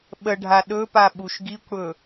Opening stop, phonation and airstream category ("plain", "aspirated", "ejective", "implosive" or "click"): implosive